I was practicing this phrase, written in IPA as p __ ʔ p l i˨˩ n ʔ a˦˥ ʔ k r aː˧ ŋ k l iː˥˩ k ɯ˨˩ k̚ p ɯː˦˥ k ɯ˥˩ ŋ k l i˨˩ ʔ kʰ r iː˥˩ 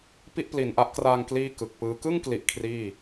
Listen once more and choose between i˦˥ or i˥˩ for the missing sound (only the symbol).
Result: i˥˩